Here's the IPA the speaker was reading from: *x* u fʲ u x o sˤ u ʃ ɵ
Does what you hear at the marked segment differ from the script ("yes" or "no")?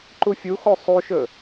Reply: yes